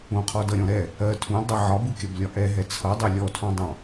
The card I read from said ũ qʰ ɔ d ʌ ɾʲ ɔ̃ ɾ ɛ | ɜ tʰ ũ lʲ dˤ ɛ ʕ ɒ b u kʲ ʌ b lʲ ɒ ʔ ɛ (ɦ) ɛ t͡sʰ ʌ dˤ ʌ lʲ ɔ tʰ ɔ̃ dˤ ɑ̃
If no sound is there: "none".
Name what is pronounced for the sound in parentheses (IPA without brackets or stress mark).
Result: ɦ